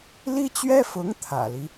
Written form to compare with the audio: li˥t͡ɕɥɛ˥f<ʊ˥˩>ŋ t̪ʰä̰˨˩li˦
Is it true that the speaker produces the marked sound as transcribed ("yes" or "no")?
no